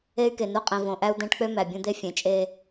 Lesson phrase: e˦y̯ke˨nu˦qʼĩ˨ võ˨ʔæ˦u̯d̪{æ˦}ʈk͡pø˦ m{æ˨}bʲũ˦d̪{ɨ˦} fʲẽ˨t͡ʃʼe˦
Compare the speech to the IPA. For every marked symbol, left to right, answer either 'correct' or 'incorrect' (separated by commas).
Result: incorrect, correct, incorrect